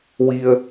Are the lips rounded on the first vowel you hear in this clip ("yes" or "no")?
no